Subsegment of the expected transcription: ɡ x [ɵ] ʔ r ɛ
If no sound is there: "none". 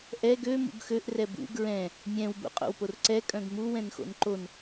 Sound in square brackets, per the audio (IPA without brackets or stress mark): ø